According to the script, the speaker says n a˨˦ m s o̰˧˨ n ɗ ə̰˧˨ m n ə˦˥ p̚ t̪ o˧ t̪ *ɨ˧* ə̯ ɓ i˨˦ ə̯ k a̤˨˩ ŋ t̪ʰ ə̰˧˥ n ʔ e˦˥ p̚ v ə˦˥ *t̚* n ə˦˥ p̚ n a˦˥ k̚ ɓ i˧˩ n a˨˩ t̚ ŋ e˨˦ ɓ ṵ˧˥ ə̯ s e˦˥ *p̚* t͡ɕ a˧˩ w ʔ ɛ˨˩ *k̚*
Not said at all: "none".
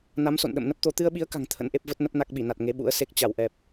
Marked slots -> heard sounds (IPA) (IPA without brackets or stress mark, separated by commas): ɨ˧, t̚, k̚, p̚